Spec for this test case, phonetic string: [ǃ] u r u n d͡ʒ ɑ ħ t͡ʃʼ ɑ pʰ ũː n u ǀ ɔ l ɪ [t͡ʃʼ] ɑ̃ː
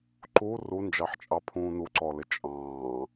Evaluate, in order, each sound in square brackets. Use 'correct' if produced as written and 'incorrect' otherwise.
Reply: correct, correct

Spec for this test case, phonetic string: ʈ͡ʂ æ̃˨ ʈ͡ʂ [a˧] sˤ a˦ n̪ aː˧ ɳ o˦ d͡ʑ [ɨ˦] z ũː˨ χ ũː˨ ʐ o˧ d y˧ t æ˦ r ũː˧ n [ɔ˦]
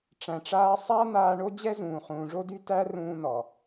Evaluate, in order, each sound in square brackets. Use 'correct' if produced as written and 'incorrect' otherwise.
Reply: incorrect, incorrect, incorrect

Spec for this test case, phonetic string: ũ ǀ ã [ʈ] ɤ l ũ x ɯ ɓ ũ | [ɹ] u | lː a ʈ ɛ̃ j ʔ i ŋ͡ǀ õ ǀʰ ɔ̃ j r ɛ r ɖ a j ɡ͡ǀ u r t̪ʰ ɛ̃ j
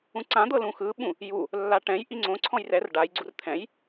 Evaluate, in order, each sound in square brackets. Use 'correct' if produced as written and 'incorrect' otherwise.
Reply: incorrect, incorrect

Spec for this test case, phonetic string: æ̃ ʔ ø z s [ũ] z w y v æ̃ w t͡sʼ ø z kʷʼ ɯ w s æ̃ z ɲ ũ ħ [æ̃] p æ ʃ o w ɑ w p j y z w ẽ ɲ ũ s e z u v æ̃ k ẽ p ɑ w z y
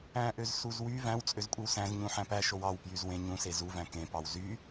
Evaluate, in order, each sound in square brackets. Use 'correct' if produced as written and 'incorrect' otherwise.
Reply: incorrect, correct

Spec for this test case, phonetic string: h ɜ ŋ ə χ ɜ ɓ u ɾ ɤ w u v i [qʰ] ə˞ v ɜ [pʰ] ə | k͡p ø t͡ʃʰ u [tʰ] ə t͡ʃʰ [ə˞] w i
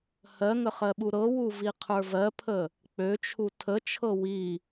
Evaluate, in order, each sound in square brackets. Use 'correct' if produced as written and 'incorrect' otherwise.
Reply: correct, correct, correct, incorrect

